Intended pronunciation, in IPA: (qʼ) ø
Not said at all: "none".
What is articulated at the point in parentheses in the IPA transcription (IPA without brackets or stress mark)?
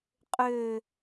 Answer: qʼ